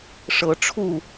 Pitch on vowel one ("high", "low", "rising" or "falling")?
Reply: rising